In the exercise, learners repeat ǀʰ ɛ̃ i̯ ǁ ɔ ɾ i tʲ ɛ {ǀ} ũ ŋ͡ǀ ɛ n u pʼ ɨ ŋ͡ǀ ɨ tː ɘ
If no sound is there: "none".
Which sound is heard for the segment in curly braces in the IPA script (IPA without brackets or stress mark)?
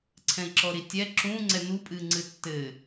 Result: ǁ